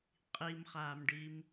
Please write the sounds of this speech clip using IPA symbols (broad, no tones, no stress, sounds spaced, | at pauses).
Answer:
qʼ i m χ aː m ɖ i m